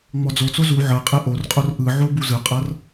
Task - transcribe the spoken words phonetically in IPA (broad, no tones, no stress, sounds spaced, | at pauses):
ŋ͡m ɔ d͡z o t͡s o z u ʕ ɤ qʼ ɛ ʔ o r qʼ o r ʔ ɯ ʕ o b u z ɯ qʼ ɤ r